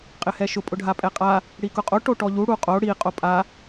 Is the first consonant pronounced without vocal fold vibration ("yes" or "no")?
yes